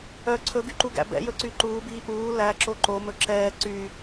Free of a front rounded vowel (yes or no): no